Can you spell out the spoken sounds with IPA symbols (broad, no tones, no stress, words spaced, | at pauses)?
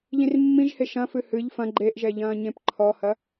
ʎĩrmːĩʒhe ʃɐ̃fɨ hɨʎ fɐ̃ ɡ͡ǃeʔʒɛʎɐ̃ːɲẽp ǃʰɔhɐ